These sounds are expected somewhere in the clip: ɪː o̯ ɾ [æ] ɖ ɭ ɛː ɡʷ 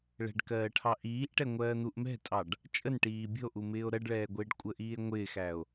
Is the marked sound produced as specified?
no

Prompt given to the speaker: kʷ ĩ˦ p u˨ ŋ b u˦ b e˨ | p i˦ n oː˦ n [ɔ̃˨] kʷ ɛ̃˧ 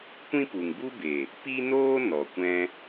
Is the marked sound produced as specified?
no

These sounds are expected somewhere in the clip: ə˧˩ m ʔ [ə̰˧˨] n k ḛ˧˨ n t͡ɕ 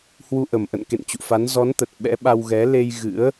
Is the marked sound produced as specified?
yes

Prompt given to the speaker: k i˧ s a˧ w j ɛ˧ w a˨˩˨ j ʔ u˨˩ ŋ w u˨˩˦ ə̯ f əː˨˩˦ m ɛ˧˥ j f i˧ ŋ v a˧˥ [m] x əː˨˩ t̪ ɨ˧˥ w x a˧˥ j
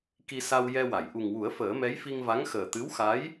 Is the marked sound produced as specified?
no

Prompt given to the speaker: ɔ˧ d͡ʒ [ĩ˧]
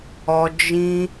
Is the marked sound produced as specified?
yes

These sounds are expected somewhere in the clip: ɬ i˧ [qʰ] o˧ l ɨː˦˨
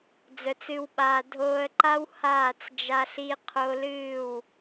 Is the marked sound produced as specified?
yes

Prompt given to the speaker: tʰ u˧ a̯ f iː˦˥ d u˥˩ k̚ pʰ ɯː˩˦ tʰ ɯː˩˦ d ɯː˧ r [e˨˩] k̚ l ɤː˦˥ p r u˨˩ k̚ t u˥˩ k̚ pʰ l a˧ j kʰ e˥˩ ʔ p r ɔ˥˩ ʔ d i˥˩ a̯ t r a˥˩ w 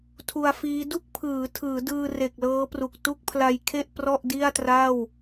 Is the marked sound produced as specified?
yes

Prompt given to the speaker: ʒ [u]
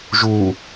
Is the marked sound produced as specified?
yes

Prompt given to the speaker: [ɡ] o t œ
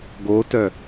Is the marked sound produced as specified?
yes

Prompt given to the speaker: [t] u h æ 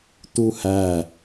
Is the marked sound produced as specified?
yes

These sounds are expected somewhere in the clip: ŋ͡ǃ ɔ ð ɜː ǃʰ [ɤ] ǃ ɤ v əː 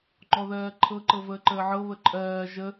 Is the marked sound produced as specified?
yes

